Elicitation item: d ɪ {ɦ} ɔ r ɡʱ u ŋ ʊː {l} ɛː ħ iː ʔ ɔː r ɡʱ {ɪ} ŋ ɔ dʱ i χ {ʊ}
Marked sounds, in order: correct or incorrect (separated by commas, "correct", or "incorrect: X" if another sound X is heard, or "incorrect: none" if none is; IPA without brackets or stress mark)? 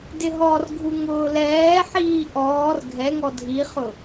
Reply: correct, correct, incorrect: ɛ, correct